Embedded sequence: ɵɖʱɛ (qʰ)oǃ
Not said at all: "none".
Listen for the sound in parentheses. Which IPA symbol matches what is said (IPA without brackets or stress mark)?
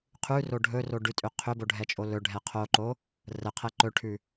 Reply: qʰ